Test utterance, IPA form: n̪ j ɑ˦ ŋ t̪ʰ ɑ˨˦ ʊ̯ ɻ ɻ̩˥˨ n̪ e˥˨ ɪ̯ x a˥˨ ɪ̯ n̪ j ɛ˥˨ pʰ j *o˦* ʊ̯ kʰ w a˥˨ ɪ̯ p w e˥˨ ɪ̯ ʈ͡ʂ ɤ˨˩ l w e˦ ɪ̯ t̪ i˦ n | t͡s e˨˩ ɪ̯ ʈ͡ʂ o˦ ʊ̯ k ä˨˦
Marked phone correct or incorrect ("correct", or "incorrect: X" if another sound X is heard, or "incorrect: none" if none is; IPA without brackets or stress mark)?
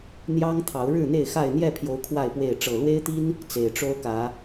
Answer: incorrect: o˨˦